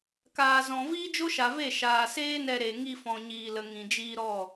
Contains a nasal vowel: yes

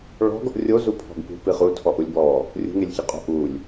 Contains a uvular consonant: yes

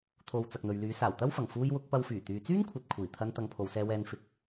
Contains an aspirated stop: yes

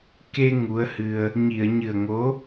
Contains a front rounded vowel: no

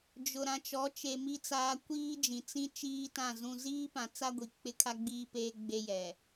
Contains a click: no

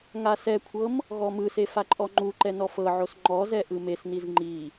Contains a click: yes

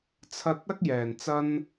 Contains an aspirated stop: yes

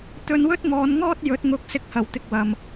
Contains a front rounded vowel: no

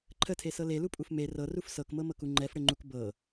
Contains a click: yes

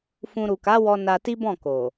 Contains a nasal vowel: yes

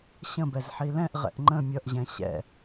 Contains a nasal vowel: yes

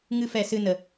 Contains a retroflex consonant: no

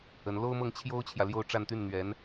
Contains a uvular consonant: no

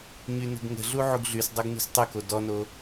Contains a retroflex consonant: no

